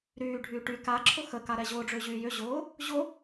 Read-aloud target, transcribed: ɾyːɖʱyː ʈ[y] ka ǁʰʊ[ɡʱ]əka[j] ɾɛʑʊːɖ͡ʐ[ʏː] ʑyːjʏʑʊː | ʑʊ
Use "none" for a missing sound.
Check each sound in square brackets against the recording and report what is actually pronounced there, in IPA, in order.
y, x, none, ʏː

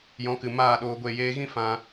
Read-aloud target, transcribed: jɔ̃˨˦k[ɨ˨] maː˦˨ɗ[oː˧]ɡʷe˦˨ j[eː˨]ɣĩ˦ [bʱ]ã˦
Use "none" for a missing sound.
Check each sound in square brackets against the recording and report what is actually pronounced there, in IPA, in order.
ɨ˨, oː˧, eː˧, f

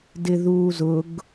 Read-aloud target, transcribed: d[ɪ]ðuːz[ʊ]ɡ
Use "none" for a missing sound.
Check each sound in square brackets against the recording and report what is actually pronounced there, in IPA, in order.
ɪ, ʊ

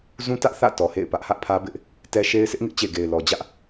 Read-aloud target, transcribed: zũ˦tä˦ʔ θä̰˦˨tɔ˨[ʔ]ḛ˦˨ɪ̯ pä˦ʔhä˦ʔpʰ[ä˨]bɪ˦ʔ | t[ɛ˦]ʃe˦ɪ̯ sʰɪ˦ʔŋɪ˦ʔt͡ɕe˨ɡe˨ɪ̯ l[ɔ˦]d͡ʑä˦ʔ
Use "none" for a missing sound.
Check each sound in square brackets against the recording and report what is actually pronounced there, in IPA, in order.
h, ä˦, ɛ˦, ɔ˨

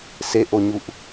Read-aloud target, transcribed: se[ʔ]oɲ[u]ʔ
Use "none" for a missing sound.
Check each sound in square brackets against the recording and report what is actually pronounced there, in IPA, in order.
ʔ, u

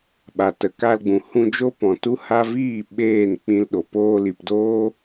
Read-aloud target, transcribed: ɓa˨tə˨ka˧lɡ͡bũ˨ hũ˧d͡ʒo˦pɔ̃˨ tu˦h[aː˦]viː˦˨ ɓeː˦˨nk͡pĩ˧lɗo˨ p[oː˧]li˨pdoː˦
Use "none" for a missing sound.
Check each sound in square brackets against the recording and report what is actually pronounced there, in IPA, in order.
a˦, oː˧

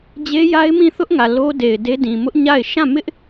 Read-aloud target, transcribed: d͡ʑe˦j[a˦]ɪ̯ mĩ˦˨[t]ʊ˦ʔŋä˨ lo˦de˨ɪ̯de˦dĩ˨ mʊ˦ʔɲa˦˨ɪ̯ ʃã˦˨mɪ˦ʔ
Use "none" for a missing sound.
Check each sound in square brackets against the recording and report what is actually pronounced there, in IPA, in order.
a˦, θ

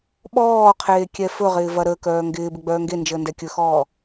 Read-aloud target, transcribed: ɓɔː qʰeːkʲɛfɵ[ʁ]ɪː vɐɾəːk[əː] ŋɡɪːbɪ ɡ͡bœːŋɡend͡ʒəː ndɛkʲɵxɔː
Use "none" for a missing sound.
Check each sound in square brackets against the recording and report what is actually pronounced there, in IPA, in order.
ʁ, œː

